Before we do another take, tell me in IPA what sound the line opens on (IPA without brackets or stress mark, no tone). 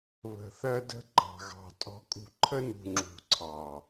β